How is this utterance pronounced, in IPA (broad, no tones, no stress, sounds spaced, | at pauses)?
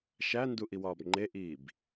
ʃ æ n d u ʔ i w ɒː b ŋ͡ǃ e ʔ iː b